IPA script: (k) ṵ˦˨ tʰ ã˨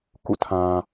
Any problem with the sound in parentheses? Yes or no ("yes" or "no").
no